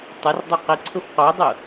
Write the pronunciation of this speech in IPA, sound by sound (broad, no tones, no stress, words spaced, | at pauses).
tˤʊrdˤʏ qɪǀʰʊf qodˤʊ